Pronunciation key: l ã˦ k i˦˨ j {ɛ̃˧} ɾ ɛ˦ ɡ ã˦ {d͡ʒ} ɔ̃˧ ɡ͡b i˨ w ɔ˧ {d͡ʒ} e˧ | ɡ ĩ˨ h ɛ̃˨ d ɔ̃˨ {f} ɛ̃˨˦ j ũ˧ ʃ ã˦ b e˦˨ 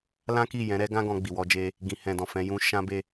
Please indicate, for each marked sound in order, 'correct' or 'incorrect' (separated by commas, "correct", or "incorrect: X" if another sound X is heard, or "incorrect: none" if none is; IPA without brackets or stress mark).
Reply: incorrect: ɛ̃˨˦, incorrect: ɡ, correct, correct